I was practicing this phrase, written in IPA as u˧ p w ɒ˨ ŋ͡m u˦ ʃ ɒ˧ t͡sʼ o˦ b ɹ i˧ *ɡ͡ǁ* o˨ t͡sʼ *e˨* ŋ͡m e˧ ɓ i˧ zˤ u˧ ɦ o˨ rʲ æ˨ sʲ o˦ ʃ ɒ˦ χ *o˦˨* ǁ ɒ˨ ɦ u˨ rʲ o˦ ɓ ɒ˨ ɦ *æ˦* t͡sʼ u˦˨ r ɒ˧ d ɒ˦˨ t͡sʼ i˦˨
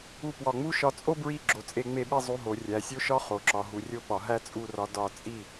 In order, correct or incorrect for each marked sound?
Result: correct, incorrect: e˧, incorrect: o˨, correct

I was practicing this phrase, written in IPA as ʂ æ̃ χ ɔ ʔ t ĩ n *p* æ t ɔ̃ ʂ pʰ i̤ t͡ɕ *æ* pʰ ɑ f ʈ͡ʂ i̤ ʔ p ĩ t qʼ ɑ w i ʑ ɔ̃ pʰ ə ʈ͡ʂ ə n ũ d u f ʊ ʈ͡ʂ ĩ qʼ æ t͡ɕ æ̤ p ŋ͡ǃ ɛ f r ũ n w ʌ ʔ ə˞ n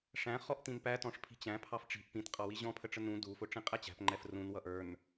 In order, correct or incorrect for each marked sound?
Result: correct, incorrect: æ̃

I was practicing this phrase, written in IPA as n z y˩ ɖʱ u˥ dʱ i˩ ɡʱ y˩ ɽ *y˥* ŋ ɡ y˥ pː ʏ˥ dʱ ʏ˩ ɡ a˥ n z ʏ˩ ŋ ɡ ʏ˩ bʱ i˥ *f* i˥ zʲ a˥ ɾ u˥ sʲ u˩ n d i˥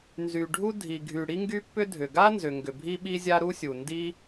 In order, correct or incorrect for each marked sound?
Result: incorrect: i˥, incorrect: ɓ

